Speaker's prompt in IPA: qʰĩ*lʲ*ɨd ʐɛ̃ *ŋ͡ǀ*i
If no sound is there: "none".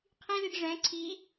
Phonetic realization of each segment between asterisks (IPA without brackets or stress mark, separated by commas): l, ǀʰ